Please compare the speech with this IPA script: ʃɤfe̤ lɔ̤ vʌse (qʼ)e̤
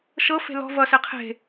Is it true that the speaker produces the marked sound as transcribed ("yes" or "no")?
no